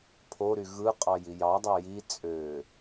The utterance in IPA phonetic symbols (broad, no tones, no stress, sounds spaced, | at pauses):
pʰ o ɾ y ɣ ɯ qʼ ɑ j i j ɑ dˤ ɑ j i t͡sʼ ø